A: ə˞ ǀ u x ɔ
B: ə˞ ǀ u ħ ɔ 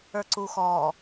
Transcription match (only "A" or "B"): A